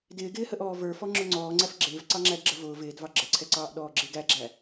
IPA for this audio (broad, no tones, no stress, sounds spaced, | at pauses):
d ɪː ɡ ɪː h ə ʔ ɔː v ə˞ f ɔ ŋ͡ǁ ʊ ŋ͡ǀ ɔː ŋ͡ǀ æ f ɡ͡ǁ ɪː v ǀ ɑ ŋ͡ǁ æ d ɡ͡ǁ ə v ʊː v ɪː d v ɑ ɡ͡ǁ ə ǀʰ ɛ ǀ ɑː ʔ ɗ ɔː ɡ͡ǁ ɪː ɡ æ ɡ͡ǁ æ